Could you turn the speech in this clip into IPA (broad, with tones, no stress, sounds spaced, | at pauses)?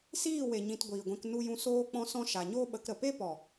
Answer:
s iː˦˨ w e˨ ɲ ĩ˧ t ɡʷ iː˨ ɡʷ ɛ̃˧ k n u˧ j ũ˧ s oː˦ k͡p ɔ̃˦ s ɔ̃˦ ʃ a˨ ɲ oː˦ ɓ ə˨˦ k ɾ ə˨ p e˦ p ɔ˨